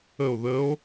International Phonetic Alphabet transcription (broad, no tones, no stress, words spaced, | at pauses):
əo̯ ðəo̯